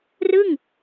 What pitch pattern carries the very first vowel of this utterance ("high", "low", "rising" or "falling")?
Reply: falling